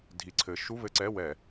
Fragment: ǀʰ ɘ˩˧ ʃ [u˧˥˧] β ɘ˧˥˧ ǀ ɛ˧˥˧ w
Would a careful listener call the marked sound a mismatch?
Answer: no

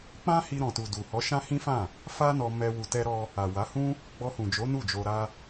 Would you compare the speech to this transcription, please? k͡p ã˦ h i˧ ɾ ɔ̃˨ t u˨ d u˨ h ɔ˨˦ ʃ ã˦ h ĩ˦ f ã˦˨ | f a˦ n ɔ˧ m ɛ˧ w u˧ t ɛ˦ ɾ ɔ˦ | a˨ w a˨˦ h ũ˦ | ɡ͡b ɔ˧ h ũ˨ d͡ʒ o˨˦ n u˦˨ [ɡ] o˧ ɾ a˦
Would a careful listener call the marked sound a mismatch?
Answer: yes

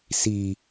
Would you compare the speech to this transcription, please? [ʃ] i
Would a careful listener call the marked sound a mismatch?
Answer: yes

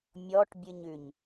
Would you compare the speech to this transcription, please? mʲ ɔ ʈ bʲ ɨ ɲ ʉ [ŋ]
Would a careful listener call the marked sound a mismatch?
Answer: yes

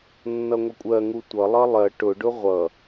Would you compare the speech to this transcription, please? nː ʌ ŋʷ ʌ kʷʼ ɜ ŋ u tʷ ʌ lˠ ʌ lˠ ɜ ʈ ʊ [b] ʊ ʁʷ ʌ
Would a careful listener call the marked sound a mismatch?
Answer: yes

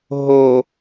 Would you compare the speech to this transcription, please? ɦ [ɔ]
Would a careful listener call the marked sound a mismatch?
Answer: yes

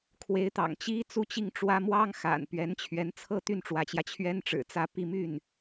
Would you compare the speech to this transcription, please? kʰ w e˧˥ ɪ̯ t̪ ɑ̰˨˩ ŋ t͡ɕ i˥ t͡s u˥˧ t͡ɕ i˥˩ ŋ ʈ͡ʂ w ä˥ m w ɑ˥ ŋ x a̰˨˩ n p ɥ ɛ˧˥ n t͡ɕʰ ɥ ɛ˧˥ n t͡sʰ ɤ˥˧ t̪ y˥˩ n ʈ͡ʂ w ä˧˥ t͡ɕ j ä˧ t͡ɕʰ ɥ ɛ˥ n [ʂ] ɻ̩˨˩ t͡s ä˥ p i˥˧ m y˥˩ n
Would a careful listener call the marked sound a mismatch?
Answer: yes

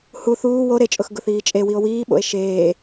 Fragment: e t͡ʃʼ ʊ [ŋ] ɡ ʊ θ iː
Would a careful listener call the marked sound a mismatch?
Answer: yes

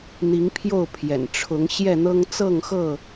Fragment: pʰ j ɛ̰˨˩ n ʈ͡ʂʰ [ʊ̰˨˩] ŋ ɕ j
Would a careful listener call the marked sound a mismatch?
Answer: yes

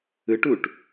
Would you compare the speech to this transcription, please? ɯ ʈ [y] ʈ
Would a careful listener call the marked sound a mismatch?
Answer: yes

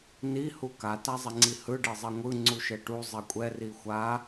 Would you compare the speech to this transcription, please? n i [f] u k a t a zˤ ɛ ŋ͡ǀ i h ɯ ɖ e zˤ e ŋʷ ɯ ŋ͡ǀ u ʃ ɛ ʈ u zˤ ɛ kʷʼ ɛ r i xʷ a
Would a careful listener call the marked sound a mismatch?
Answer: yes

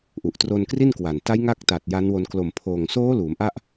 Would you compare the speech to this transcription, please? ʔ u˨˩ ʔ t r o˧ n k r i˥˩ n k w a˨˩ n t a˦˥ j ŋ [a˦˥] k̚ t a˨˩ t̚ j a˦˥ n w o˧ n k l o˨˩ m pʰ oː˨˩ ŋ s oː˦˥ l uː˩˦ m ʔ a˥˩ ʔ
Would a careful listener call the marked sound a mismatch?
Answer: no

